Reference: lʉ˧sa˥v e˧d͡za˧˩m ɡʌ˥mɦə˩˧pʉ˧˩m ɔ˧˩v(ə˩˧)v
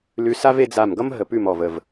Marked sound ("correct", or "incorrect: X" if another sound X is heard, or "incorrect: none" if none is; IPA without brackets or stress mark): incorrect: ə˧˩